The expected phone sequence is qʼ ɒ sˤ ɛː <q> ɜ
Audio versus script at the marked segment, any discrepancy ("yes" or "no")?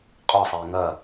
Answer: yes